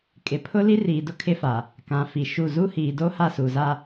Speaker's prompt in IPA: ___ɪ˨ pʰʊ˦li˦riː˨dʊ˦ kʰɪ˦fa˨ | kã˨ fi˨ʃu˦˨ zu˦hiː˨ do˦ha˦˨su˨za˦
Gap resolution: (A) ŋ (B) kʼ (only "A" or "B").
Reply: B